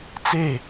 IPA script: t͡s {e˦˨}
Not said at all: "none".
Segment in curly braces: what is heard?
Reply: e˦˨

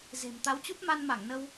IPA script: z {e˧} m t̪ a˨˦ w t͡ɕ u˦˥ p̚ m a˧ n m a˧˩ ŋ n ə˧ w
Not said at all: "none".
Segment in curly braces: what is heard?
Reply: e̤˨˩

